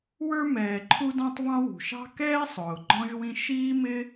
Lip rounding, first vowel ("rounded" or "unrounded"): unrounded